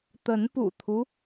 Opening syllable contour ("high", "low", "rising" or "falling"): rising